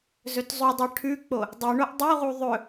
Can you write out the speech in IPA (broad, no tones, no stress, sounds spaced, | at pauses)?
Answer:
z ɵ t zˤ ʉ dˤ e ʈʰ ʉ k͡p o | dˤ e ɳ o ʔ dˤ u ʁ u ðˤ ɵ